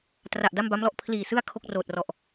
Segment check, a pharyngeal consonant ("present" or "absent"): absent